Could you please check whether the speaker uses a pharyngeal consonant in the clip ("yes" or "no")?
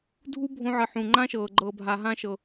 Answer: yes